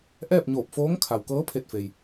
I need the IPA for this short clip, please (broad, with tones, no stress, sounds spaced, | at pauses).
ʔ ɛː˥˨ p̚ ɲ oː˧˩ p̚ f oː˧˥ ŋ kʰ a˩ w k ɤː˧˥ pʰ e˧˩ t̚ f e˩ j